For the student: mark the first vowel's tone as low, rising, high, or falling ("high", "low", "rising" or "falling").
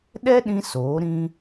high